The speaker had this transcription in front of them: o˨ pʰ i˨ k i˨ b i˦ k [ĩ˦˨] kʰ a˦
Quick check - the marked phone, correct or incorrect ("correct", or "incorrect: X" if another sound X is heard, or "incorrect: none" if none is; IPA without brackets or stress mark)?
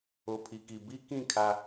correct